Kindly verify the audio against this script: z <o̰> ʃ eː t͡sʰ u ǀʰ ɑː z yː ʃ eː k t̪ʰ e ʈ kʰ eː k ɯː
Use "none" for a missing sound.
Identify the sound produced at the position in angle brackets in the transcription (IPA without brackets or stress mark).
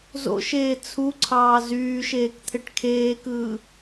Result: o̰